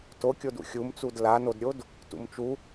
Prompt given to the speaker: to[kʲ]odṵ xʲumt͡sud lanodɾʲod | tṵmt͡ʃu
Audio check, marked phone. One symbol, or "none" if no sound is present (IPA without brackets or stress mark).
kʲ